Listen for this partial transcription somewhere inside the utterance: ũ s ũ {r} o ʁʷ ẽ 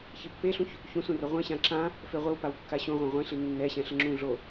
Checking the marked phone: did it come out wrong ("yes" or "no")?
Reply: no